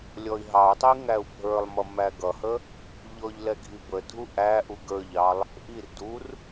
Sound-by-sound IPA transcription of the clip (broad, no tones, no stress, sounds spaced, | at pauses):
lʲ ɔ i̯ ɦ ɑ u̯ tˤ i ŋ æ u̯ bʱ ə˞ lˠ m ʌ m æ ɡ ʌ h ə | ʎ ɔ ʎ l ɛ ɡʱ i b ə dʱ u ʔ æ ʔ u ɡ ə˞ ʎ ɑ lˠ | ʔ i r d u r